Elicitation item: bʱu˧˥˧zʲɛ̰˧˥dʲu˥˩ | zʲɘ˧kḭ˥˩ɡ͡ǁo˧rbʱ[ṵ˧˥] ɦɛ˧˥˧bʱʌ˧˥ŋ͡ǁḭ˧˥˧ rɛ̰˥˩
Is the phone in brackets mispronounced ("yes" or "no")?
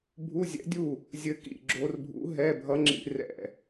no